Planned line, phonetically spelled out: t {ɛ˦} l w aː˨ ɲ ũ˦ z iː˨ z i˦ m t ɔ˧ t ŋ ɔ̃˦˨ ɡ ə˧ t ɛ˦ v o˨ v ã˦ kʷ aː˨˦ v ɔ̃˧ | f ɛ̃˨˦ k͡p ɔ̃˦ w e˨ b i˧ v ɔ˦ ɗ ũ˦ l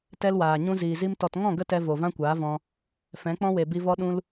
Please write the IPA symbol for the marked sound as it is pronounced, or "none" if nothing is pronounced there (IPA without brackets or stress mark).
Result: ɛ˦